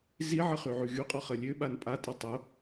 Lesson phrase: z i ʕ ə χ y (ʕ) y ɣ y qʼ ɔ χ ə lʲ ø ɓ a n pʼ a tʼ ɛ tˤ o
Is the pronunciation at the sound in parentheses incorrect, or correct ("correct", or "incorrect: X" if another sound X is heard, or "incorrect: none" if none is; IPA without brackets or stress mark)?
correct